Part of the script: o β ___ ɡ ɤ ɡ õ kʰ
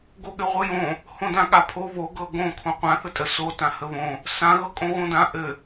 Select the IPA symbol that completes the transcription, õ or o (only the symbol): o